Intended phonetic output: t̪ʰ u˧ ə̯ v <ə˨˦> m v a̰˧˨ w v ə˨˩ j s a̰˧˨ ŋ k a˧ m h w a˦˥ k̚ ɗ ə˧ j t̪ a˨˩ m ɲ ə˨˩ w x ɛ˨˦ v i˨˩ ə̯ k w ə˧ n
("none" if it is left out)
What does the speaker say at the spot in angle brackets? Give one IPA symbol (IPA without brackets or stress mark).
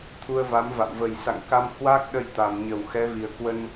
a˨˦